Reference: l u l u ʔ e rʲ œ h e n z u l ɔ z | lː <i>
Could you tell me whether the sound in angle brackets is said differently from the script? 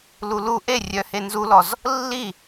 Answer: no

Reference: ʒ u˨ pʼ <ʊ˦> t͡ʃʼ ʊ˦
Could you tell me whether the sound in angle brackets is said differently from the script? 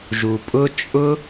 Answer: no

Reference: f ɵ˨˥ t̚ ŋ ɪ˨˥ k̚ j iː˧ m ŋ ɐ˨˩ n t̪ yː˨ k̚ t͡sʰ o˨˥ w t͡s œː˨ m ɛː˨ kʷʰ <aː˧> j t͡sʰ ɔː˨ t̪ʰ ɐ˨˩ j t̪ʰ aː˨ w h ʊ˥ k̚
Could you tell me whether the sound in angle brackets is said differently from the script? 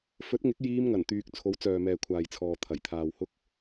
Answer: yes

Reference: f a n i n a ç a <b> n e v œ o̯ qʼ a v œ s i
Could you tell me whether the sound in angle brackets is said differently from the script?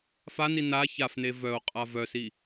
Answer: yes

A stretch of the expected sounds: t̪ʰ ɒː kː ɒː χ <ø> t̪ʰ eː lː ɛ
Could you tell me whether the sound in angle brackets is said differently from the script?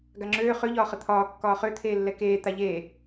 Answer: no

